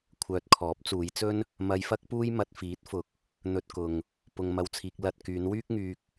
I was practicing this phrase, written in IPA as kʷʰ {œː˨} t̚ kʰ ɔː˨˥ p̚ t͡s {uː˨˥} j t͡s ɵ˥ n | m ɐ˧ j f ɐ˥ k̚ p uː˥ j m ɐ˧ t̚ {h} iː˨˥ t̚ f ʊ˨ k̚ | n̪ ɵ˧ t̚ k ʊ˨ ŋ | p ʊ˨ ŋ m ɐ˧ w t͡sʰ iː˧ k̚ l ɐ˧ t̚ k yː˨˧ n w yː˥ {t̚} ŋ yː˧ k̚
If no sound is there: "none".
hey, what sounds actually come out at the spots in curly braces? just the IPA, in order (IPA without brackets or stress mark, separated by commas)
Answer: œː˨, uː˨˧, f, k̚